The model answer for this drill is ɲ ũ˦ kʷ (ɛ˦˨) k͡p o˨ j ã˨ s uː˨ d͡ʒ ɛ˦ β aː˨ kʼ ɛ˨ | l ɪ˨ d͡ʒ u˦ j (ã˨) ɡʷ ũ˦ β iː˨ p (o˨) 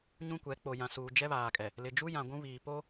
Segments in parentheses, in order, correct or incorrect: incorrect: ɛ˨˦, correct, incorrect: o˦

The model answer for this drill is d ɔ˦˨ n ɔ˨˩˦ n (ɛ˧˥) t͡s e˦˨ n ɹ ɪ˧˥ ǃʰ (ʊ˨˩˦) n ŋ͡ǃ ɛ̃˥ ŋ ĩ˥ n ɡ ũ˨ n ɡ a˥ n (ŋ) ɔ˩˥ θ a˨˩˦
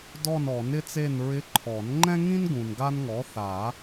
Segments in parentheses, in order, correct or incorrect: incorrect: ɪ˧˥, incorrect: ɔ˨˩˦, correct

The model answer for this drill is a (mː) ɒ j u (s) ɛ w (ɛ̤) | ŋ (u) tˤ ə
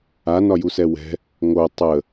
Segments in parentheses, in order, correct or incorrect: incorrect: n, correct, correct, incorrect: o

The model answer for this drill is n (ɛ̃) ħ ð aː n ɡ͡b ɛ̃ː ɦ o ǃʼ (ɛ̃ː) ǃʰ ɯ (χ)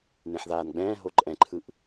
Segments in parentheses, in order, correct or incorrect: incorrect: ẽ, incorrect: ɛ̃, incorrect: ʔ

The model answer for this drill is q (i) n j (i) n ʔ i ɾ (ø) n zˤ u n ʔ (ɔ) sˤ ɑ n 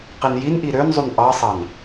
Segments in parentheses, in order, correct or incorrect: correct, correct, correct, incorrect: ɑ

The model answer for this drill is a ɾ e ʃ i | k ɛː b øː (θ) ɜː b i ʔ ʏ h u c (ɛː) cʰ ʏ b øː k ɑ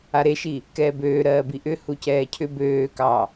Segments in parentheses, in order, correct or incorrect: incorrect: ɾ, correct

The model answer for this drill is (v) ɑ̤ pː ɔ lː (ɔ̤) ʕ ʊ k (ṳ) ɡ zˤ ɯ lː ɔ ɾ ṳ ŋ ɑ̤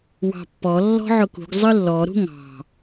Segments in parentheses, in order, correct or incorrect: incorrect: w, correct, correct

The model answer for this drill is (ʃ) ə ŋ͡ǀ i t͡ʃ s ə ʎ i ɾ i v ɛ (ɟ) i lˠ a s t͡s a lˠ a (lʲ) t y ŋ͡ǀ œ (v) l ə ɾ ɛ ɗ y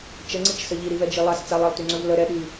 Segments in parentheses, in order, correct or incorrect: incorrect: t͡ʃ, incorrect: d͡ʒ, incorrect: lˠ, correct

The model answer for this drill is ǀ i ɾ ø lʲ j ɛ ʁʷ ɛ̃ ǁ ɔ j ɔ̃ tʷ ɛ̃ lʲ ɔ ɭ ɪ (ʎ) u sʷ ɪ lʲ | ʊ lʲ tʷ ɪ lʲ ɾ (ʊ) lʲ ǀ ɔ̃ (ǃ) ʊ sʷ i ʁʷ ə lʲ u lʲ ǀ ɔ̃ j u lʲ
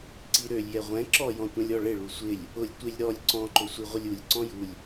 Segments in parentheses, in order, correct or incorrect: incorrect: ɭ, incorrect: ɔ, correct

